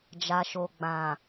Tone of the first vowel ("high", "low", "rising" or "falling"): low